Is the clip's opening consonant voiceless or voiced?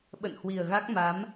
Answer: voiced